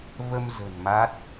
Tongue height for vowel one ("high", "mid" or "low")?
mid